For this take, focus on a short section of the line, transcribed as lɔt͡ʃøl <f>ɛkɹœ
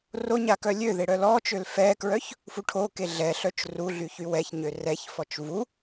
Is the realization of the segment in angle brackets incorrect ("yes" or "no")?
no